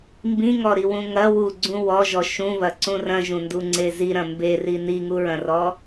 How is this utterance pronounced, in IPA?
m b ĩ ŋ ɔ ɾ i w ũ ŋ ɐ w u ɡ͡ǀ ũ w ɔ ʒ ɔ ʃ ũ β ɐ ǀ ũ r ɐ̃ ʒ ũ n d u ŋ͡ǀ e z i ɾ ɐ̃ m b e r i n i ŋ u ɹ ɐ̃ r ɔ

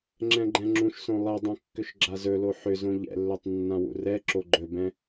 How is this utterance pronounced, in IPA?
ŋ͡ǁ ɛ̃ ɡ͡ǃ ɛ̃ ŋ͡ǁ ũ ʃ s õ lˠ ɛ dˤ õ kː ʏ ʃ ɡ͡ǁ a z ɵ l o ħ ʏ z õ ʎ ɛ̰ lː ɵ tˤ nː ã w ṵ r ɛ ǁ o ɡ͡ǃ ɵ b ɛ̃

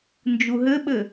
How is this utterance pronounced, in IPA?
n d͡ʒ u ɦ ɘ ɓ ɘ

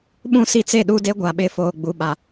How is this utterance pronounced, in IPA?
ɓ ũ˦˨ s i˦ t͡s e˦˨ ɗ u˦ d e˦ ɡʷ a˨ ɓ ɪ˨˦ f oː˨ ɡ͡b u˨ ɓ a˨

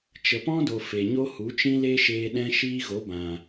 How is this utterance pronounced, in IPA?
t͡ʃ ə˨ p ɔ̃˦ d o˨ f e˨ ɲ o˦ h u˨˦ t͡ʃ ĩ˦ l e˦ ʃ eː˧ ɗ ɛ̃˧ ʃ iː˧ ɣ o˨˦ b ã˨

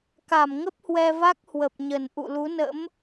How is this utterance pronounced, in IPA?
k a˧˩ m ŋ ə˦˥ p̚ h w ɛ˧ v a˦˥ k̚ h w ə˨˩ p̚ ɲ ə˨˩ n ʔ ṵ˧˨ l u˨˦ n ə̰˧˥ m

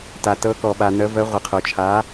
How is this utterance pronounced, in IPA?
t a˩ t ɤ˩˧ k ɔ˩ ɓ a˩ n̪ ə˩˧ v ə˩˧ ʁʷ ə˩ qʰ o˩ t͡ʃʰ a˩˧

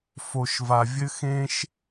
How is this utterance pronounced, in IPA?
f o˨ ʃ v a˨ vʲ ɘ˦ x ẽ˦ ʃ

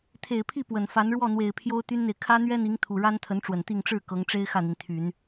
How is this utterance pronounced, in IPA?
t̪ʰ e˨˩ ɪ̯ pʰ i˥˩ p w ə˨˩ n f a˧˥ n ɻ w ɔ˥˩ n̪ w e˨˩ ɪ̯ pʰ j o˥ ʊ̯ t̪ y˥ n n̪ e˨ ɪ̯ kʰ ä˥ n̪ ɥ ɛ˥ n̪ i˧˥ ŋ t̪ʰ u˨˩ ɻ a˥ n t̪ʰ ə˧˥ n ʈ͡ʂ w ə˨˩ n t̪ i˥˧ ŋ ʈ͡ʂ ɻ̩˥˩ k ɤ˧˥ ŋ ʈ͡ʂ e˥ ɪ̯ x ä˥˩ n̪ i˩ n t̪ʰ y˨˩˦ n

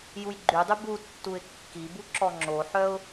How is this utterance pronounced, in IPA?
j u j ɡ͡ǃ y dˤ y b u tː u ɪ̯ kː i b u ǁ ɔ ŋ͡ǁ o ħ œ ʊ̯

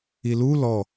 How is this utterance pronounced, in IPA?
i l u l ɔ

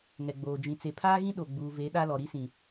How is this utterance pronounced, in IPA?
ŋ ɛ˨ ɡ͡b oː˨ d͡ʒ ĩ˨ t͡s e˨ pʰ aː˦ ɣ ĩ˦ ɗ o˨ ɡ͡b uː˨ v e˨˦ ɗ a˦ l ɔ˨ ɾ i˦ s ĩ˨

